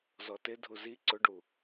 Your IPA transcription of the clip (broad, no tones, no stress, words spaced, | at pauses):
zɔtɪ dʱuzi ǀʊɖu